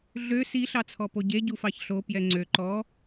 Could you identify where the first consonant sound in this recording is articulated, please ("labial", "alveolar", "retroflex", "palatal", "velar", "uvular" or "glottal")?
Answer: alveolar